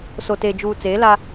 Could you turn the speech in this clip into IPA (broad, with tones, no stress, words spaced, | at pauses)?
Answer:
so˨teː˨ d͡ʒuː˨ t͡seː˨˦la˦